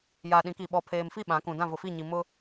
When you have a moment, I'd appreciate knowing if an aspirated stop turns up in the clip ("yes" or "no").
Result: yes